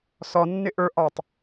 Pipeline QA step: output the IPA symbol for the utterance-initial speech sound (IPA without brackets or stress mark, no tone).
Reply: s